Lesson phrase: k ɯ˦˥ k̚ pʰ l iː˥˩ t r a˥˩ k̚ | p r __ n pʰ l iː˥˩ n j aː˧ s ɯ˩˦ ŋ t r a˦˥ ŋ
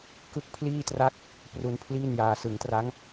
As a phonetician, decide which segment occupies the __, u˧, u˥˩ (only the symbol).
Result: u˧